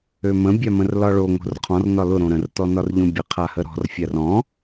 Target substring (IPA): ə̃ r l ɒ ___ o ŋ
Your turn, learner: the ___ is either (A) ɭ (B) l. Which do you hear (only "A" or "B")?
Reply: A